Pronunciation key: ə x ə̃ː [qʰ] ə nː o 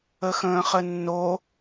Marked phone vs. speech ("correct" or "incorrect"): incorrect